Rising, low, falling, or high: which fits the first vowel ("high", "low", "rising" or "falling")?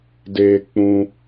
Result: high